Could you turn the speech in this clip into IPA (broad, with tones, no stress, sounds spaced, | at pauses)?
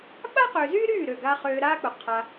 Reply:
ɓ a˦ q ø˨ z yː˦ ɾ yː˦˨ ɾ ø˦˨ ɡ a˦ χ øː˧ ɾ aː˦ k͡p ʊ˨ qʰ a˧